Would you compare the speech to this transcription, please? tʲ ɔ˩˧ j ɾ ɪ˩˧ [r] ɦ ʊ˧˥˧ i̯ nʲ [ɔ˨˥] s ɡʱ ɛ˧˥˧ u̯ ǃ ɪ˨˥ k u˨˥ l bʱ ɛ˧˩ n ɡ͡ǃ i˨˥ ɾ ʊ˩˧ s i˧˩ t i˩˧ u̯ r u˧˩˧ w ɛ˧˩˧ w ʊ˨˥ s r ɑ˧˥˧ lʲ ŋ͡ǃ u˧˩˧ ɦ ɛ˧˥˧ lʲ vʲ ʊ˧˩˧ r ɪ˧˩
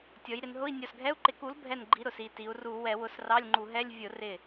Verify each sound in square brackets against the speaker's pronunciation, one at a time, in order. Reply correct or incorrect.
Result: incorrect: n, incorrect: ɔ˧˩

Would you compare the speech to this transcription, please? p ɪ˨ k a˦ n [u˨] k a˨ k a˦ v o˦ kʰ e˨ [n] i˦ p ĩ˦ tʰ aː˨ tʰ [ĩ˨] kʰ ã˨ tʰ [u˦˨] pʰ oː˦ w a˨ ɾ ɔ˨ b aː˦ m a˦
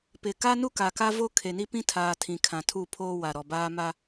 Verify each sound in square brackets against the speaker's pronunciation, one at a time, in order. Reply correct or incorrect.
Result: incorrect: u˦, correct, correct, correct

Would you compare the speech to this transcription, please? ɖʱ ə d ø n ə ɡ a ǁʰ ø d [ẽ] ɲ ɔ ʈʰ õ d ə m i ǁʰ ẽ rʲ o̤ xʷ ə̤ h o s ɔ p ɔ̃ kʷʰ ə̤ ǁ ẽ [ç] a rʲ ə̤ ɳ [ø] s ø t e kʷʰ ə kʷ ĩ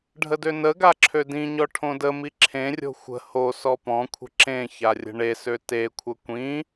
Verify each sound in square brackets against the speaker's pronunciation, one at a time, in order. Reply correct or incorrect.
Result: incorrect: ĩ, correct, incorrect: e

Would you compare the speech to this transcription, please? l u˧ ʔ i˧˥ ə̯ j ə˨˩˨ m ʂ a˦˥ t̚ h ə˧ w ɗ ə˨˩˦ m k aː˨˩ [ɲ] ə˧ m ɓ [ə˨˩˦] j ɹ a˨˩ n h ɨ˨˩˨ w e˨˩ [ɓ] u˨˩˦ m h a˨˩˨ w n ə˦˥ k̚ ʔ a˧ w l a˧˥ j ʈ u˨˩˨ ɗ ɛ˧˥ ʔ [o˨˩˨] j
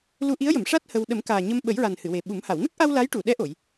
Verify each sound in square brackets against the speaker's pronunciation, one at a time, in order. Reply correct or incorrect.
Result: correct, correct, correct, correct

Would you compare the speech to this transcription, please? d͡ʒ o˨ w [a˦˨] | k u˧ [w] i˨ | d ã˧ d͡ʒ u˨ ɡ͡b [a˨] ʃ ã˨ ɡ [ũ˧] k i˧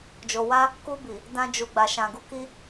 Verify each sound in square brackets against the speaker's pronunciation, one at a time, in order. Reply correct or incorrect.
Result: incorrect: a˧, incorrect: b, correct, incorrect: u˧

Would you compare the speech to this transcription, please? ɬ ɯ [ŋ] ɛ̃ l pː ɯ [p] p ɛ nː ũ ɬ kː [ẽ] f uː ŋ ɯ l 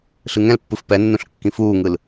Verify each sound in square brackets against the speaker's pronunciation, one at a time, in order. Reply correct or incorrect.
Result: correct, incorrect: f, incorrect: ĩ

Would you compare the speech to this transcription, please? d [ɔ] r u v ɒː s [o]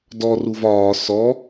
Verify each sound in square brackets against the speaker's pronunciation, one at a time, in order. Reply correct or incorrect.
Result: correct, incorrect: ɔ

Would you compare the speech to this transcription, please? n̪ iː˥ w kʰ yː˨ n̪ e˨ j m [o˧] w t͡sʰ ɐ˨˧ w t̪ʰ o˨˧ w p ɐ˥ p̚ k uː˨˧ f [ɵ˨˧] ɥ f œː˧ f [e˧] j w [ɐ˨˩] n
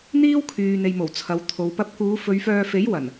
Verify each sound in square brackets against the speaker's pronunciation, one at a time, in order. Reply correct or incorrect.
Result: incorrect: o˨˩, correct, incorrect: e˨˥, correct

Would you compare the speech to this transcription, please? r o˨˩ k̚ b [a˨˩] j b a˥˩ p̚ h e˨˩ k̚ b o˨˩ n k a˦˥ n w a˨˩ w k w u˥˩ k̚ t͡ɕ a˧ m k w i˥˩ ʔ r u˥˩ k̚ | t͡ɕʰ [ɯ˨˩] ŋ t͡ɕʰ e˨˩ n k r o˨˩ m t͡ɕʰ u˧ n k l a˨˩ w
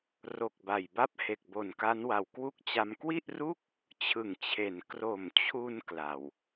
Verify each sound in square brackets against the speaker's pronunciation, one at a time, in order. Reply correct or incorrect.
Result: correct, correct

